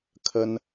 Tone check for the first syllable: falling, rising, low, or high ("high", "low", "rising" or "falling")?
high